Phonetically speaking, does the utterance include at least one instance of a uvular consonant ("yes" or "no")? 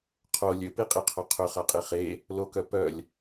yes